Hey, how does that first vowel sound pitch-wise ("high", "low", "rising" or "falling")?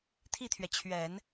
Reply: falling